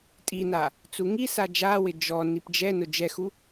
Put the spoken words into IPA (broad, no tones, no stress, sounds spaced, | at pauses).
tʼ i n a | t͡s u ŋ i s a d͡ʒ a w ɪ d͡ʒ ɔ n i p d͡ʒ ɛ n ʊ d͡ʒ ɛ x u